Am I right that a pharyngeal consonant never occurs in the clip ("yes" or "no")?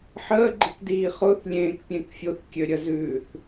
no